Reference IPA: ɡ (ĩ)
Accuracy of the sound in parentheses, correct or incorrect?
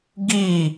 incorrect